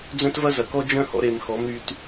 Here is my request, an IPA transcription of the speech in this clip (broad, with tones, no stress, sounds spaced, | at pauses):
d͡z œ̃˦ t v ɐ˦ z ɐ˨ k ɔ˦ d͡ʒ œ̃˦ h ɔ̰˧ ɾ e˨ m x ɔ˨˦ m ɾ y˧ t